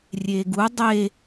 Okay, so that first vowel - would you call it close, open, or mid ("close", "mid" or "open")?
mid